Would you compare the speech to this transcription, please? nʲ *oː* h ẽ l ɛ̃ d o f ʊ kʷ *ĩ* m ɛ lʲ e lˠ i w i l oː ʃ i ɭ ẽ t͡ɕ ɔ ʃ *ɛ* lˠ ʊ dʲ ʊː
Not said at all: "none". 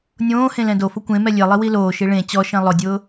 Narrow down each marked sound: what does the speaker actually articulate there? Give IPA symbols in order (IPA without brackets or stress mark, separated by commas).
õː, ẽ, ɛ̃